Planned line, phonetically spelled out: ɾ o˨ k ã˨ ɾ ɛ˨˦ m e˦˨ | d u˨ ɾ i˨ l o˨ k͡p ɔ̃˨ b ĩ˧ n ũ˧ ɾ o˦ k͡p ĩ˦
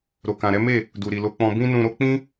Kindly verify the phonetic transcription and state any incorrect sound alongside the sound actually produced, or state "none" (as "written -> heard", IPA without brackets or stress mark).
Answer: none